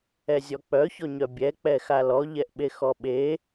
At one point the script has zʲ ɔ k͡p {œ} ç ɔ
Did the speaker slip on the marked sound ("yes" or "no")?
no